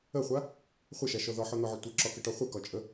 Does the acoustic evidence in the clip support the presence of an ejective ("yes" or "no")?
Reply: yes